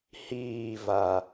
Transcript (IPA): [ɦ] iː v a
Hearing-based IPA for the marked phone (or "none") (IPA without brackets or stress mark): h